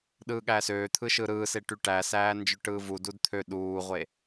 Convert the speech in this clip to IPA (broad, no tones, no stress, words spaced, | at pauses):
ɗɯːɠæsøːt̪ʰɯ ʃɯɾɯːse ʈyʈæsæː nd͡ʒøʈɯːvudud t̪ʰø ɗuːʁʷe